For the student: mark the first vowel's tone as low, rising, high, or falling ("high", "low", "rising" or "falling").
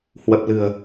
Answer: low